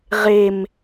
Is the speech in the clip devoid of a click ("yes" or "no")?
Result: yes